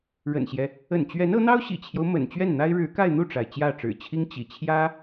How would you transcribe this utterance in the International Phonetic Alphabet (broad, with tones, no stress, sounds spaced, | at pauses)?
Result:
ɻ ə̰˨˩ n ɕ j ɛ˦ | ə̰˨˩ n t͡ɕ ɥ ɛ˧˥ n ɤ˧˥ n̪ ɑ˥ ʊ̯ ɕ ḭ˨˩ t͡ɕʰ j o˦ ʊ̯ m ə̰˨˩ n t͡ɕ ɥ ɛ˥˩ n n̪ a˥ ɪ̯ ɻ ɻ̩˧˥ k a˥˧ ɪ̯ n̪ u˥˩ ʈ͡ʂ a˩ ɪ̯ t͡ɕ j ä˥˩ ʈ͡ʂ ɻ̩˨˩ t͡ɕʰ i˥ ŋ t͡ɕ ḭ˨˩ t͡ɕʰ j ä˥